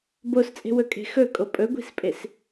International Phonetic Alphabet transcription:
b o s t͡sʼ e̤ w ɵ kʼ e̤ x ɵ kʼ o pʼ ɵ ɡʷ i̤ s pʼ e s

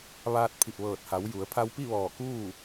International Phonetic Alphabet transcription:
ʋ aː˧ t̚ pʰ i˧˩ p̚ ʋ ɤː˧˩ t̚ h a˩˧ w j u˩˧ ə̯ pʰ a˧ w p i˥˨ ʋ ɔː˧˩ k uː˥˨

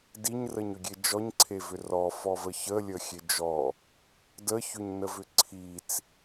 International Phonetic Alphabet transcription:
d i ɲ r ə ɲ ʏ ɡʲ e d͡ʒ ɔ ɲ ǀʰ e v ʏ r ɔ f ɔ v ə ç ə lʲ ə xʲ e d͡ʒ ɔ | d ə ç ʏ ɲ n ə v ʏ ǀʰ i t͡s

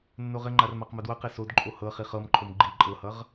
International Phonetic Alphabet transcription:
nː o ʁ ɘ ŋ͡ǃ a r m a q m ɤ d w ʌ q i s o d ǃʼ o h ɤ χ i χ ɤ m ǃʰ o m ɡ͡ǃ i ǃʼ ɤ h ʌ ʁ

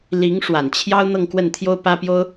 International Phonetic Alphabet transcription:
l i˧˥ ŋ ʂ w a˨˩ n t͡ɕʰ j ɑ˥ ʊ̯ n̪ ɤ˥˧ ŋ k w ə˥˩ n t̪ʰ j o˥ ʊ̯ p ä˥ p j o˥ ʊ̯

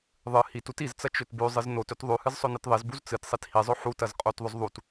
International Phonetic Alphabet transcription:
ðˤ ɨ h i t u t i z t͡s ɐ t͡ʃ ɵ t b ʉ zˤ ɨ z n o t ɵ t ðˤ ʉ h ɨ z sˤ ɵ n ɨ t ðˤ i z b u z t͡s ɨ t sˤ i t h i zˤ ɵ ħ u t ɐ z qʼ o t ðˤ ɵ z ðˤ u t

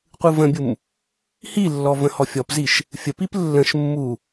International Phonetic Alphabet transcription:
qʷ ɯ v ə̃ bʲ u m | h i lː ɔ v ə̃ h ɔ fʲ ɔ p z i ʃ | fʲ ə p i p lː ə̃ ʃ mː u

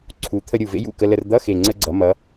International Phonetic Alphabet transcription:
ǀʰ u˩˧ t̪ʰ ə˧ ɾʲ u˨˩ v ḛ˧˥ j ṵ˨˩ k ə˧ l ə˧ r d̪ ʌ˧˥˧ x e˨˩ ŋ͡ǀ ə˧ ɡ͡ǀ ʌ˩˧ m ʌ˩˧

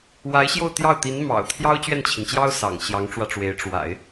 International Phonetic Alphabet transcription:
w a˧˥ ɪ̯ ɕ j o˥˧ ʊ̯ t̪ j ɑ˥˩ ʊ̯ t̪ i˧˥ n m ɑ̰˨˩ ʊ̯ t̪ʰ j ɑ˥ ʊ̯ t͡ɕ ɥ ɛ˥˩ n t͡ɕʰ i˩ n t͡ɕ j ɑ˥ ʊ̯ s ɑ̰˨˩ ŋ ɕ j ɑ˧˥ ŋ ʈ͡ʂ w ä˧ ʈ͡ʂ w e˧˥ ɪ̯ ʈ͡ʂ w a̰˨˩˦ ɪ̯

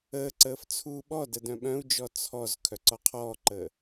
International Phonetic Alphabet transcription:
əː ǀ əː f t͡sʰ uː ɓ ɔ d ə d œ̃ ɓ œ̃ u̯ d͡ʒ ɔ t͡sʰ ɔ z kʰ œ ǀ ɔ qʰ ɔː ǃ əː

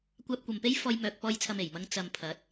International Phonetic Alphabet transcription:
kʷ aː˧ p̚ kʷ ɐ˨ m p e˥ j f ɔː˧ j m œː˨ k̚ p ɔː˧ j t͡sʰ ɐ˨ m e˨˩ j m ɐ˧ ŋ t͡s ɐ˨ m pʰ ɐ˨˥ t̚

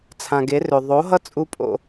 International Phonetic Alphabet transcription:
t͡sʰ ã˨ ɡ e˨˦ r ø˨ ðˤ o˨˦ ɦ ʌ˦ t͡sʼ u˦ pʼ o̰˦

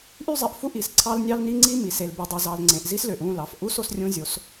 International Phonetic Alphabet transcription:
ʔ y˦ zˤ e˨ ʔ f u˦ ʔ i˨ s ǀʰ ɑ˦ l nʲ ɑ˦ l n i˦ ŋ͡ǀ i˦ m i˨ s e˨ l b y˨ dˤ i˨ z ɑ˨ l ŋ͡ǀ ẽ˨ ʔ z i˦ s l ø˨ ʔ ũ˦˨ l ɑ˨ f ʔ u˦ s o˦ s rʲ ũ˦ zʲ o˨˦ s

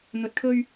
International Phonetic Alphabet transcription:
n̪ ɵ˨ t̚ kʰ ɵ˧ ɥ

